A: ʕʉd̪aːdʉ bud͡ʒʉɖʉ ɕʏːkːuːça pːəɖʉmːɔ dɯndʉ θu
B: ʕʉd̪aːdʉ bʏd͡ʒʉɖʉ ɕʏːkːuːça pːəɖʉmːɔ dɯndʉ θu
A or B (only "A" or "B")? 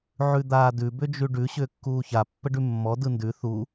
B